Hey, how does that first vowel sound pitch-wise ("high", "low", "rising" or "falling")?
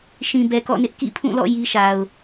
low